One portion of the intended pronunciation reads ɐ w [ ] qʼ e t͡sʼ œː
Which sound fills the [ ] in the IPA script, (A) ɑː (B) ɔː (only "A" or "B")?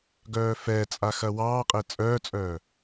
A